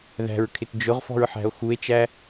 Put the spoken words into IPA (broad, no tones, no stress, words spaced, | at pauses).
ðæ̤ɹkʰɪt d͡ʒʊʁfɔ̤ɹħæ̤o̯ xue̯t͡ʃæ